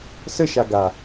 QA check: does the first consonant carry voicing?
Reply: no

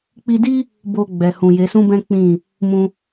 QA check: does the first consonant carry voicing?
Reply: no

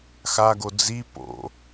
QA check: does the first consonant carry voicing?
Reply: no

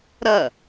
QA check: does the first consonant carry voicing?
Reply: yes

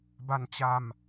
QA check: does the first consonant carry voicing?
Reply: yes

